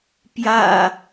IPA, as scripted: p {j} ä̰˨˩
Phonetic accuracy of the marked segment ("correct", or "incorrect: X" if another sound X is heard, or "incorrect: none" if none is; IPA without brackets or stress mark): correct